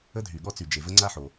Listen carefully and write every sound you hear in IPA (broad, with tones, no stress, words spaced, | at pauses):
ə˥dʱy˩ɠɔ˥t͡sy˩ d͡ʒe˩və˥ ŋ͡ǀa˥ħo˩